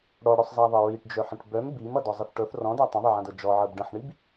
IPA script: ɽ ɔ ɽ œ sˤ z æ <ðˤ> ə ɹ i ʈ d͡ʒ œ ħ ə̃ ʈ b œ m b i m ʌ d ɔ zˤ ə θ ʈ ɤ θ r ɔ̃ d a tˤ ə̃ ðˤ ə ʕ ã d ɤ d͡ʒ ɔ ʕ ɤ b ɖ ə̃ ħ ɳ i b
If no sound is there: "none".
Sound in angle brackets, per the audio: ðˤ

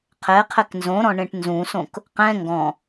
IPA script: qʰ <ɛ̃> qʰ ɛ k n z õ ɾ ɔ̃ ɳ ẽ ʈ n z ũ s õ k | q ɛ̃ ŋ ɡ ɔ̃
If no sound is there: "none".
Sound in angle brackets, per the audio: ɛ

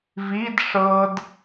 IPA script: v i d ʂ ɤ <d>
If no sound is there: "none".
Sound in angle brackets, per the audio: d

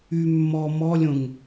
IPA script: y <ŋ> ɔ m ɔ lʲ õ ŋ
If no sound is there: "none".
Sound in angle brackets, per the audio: mː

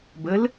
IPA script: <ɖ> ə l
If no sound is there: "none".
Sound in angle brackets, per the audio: b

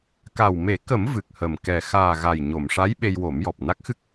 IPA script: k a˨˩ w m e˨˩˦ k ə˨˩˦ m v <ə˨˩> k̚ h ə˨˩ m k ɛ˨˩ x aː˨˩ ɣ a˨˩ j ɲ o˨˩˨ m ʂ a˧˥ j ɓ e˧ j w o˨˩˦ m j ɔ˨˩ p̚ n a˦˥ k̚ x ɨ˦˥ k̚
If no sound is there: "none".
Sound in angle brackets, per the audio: ɨ˨˩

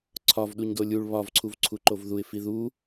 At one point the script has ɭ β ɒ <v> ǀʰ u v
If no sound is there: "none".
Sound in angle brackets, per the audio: v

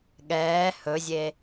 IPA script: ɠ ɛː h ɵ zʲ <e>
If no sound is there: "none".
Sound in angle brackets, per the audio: e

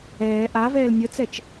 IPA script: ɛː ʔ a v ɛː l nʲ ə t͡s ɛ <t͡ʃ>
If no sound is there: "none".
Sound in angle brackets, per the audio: t͡ʃ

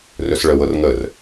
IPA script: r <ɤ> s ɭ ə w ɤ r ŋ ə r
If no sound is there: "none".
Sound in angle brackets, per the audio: ɵ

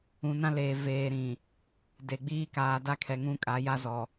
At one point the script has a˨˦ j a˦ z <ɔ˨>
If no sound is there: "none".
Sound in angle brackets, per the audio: ɔ˨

